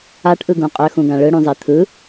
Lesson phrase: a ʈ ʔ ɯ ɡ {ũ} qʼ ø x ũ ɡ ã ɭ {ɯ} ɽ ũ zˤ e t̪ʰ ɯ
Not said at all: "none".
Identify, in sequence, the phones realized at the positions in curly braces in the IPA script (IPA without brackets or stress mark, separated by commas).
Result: ũ, ɯ